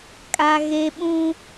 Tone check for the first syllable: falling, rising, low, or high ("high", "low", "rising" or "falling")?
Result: high